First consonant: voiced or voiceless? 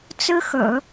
voiceless